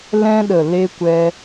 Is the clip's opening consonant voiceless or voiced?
voiced